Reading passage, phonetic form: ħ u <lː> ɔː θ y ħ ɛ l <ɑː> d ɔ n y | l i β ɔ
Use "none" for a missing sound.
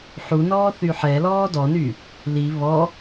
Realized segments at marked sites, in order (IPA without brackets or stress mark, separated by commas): n, ɔː